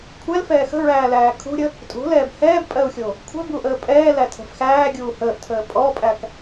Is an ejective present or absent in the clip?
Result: present